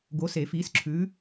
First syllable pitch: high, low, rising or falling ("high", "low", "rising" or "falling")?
rising